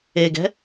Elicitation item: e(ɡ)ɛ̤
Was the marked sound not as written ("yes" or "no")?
no